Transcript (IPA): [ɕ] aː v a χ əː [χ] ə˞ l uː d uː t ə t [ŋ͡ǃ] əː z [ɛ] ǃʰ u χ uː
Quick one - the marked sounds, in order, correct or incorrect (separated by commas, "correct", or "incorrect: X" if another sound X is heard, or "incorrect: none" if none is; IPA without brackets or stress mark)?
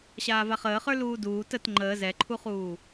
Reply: correct, correct, correct, correct